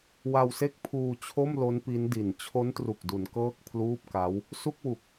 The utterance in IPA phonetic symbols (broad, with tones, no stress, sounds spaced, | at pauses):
w a˧ w s e˥˩ k̚ pʰ uː˧ t͡ɕʰ o˥˩ m l o˦˥ n p i˦˥ n d i˨˩ n t͡ɕʰ o˦˥ n t r u˨˩ k̚ d u˩˦ n k ɤː˥˩ k̚ pʰ l uː˥˩ p̚ k a˦˥ w | s u˥˩ k̚ w u˨˩ k̚